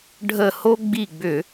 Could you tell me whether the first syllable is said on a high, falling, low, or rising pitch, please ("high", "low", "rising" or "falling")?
falling